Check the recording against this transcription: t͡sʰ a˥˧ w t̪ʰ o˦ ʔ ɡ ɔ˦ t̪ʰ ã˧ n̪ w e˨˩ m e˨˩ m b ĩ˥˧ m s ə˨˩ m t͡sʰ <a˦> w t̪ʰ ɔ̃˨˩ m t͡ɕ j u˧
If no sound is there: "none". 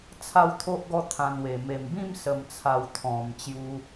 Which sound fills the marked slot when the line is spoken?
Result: a˨˩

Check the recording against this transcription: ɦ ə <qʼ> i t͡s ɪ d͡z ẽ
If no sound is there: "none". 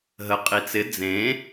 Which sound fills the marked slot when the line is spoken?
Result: qʼ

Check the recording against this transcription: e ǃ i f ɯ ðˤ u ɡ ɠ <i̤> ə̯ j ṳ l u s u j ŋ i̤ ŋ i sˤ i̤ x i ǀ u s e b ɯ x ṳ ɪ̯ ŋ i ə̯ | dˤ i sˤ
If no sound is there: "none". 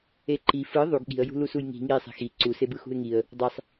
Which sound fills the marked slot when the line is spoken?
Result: i̤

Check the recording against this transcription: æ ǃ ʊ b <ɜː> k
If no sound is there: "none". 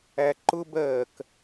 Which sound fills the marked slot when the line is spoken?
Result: ɜː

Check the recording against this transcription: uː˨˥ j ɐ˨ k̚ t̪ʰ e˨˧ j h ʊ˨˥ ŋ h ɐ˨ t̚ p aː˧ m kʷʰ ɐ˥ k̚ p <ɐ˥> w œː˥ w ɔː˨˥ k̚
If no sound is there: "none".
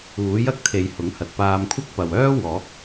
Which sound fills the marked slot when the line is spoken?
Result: ɐ˨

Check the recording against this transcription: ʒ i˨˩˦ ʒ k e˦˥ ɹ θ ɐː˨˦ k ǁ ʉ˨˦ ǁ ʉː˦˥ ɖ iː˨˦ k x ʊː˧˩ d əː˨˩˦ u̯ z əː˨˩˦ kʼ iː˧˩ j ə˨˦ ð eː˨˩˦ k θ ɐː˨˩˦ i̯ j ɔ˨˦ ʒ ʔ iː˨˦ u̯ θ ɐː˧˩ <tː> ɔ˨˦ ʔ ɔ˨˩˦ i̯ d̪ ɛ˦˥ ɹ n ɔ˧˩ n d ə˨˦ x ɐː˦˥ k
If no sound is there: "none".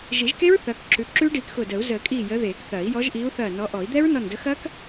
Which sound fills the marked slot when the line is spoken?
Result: n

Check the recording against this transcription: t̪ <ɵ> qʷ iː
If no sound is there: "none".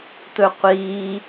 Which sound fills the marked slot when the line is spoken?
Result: ɵ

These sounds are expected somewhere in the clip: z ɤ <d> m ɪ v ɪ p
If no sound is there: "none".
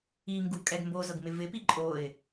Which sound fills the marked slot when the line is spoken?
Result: ɡ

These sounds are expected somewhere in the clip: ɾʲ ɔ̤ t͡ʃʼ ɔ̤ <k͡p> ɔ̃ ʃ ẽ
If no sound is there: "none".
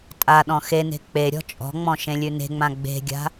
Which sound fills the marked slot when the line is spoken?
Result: ŋ͡m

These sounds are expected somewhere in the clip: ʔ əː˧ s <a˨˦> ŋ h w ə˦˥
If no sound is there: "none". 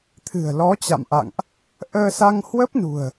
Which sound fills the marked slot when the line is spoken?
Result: a˧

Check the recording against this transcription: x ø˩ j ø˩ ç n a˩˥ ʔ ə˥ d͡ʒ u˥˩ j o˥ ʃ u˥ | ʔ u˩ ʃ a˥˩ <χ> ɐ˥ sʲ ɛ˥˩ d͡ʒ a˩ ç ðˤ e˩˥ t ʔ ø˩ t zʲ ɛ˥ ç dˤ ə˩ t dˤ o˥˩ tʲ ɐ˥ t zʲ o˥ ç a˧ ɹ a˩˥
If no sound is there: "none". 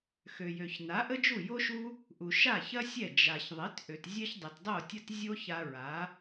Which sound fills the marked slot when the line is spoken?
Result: ç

